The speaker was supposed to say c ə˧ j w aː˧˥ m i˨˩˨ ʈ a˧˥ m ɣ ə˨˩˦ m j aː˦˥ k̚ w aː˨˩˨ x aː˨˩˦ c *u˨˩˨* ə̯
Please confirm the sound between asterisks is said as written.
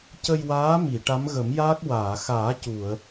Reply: yes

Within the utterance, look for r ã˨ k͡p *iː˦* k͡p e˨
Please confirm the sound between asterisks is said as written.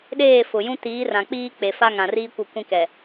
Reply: yes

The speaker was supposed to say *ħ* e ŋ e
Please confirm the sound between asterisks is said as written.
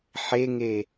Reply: yes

